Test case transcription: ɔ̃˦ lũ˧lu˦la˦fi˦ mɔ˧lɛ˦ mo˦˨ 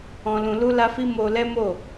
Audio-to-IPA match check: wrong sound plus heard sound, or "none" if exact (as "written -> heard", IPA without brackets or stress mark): ɔ˧ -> o˧